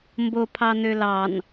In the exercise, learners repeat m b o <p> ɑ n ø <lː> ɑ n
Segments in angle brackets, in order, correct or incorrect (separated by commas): incorrect, incorrect